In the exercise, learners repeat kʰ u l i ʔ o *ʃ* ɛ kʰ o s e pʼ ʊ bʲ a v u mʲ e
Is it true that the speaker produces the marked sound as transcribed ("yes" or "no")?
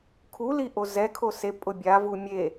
no